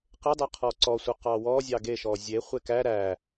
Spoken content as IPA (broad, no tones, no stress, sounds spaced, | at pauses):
q e dˤ e qʰ ɔ ǀ ɔ sʷ ɑ q ɑ w ɔ zʲ ɑ ɡ e ʃ ɔ zʲ e χʷ e k æ ɾ æ